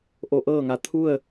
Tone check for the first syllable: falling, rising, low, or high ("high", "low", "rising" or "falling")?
rising